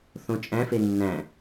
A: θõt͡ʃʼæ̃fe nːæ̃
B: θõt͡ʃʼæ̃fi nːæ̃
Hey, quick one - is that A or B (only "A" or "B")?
A